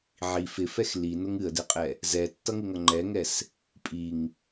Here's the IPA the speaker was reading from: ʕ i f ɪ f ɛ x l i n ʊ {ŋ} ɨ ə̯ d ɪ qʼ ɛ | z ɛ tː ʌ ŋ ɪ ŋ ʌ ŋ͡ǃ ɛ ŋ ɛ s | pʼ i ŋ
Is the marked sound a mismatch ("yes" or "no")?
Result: no